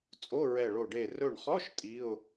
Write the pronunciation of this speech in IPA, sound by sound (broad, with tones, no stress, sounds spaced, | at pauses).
t͡sʼ o˧˥˧ ɹ ɛ˧˩ ɭ o˧˩ ɖ e˧˩ r ɵ˧˩ ɳ χ ɔ˧˥˧ ʃ tʼ i˧˥˧ ʊ̯